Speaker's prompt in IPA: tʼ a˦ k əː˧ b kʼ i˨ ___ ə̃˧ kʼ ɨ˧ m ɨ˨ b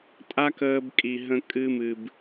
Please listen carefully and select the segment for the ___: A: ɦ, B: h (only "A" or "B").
A